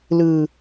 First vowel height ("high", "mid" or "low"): high